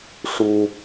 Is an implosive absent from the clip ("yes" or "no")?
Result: yes